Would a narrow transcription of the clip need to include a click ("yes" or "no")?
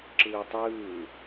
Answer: yes